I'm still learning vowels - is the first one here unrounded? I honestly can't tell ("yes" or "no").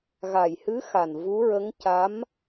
yes